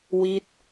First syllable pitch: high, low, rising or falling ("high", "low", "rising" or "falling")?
falling